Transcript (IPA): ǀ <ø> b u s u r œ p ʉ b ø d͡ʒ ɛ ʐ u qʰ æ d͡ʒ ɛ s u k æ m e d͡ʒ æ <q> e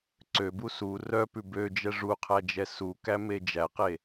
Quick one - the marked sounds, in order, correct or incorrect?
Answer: correct, correct

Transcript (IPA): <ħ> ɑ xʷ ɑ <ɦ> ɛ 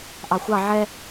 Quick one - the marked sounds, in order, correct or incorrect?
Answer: incorrect, incorrect

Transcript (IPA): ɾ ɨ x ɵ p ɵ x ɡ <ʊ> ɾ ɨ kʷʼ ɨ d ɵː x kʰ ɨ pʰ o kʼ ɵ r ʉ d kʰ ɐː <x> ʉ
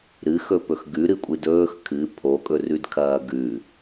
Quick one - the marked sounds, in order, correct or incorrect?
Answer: incorrect, incorrect

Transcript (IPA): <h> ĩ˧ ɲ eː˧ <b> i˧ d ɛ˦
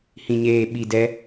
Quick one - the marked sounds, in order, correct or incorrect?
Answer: correct, incorrect

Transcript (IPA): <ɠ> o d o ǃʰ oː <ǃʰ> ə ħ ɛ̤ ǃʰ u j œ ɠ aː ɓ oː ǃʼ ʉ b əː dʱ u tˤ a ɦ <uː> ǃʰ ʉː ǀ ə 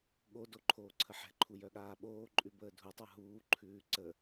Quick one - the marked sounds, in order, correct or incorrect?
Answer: correct, incorrect, correct

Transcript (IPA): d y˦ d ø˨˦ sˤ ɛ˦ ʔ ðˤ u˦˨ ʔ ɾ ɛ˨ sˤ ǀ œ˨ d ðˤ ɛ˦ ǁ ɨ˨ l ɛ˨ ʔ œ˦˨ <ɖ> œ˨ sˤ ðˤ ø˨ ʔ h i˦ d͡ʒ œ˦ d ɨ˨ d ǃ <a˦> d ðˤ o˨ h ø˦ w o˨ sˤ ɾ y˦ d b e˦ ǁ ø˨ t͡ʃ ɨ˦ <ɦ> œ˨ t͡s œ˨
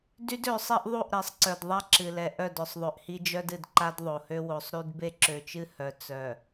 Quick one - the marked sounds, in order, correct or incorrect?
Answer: incorrect, correct, incorrect

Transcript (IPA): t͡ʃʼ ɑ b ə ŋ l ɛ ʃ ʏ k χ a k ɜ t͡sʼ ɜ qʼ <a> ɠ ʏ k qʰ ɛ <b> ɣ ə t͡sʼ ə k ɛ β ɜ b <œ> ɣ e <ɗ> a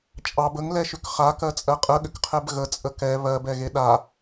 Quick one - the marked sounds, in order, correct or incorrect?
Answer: incorrect, correct, incorrect, correct

